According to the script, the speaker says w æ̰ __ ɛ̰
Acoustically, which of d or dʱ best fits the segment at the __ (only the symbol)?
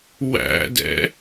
d